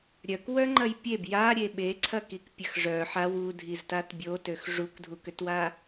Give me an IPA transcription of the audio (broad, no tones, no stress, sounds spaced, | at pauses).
ɾʲ œ k w œ ŋ͡ǃ ɐ j pʲ e b j a ɾʲ e ɓ e ǀʰ ɐ k i k pʲ ɐ x ʐ œ ħ a w u dʱ i z t a t bʲ o t ø x ʐ u k dʱ u k ø t w a